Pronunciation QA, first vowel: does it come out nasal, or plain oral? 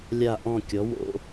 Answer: oral